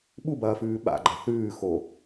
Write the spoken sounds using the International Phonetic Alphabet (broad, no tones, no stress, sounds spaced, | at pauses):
ɓ u b ɐː f ʉː ɓ a̰ ɡ͡ǃ ɐ θ ʉː x o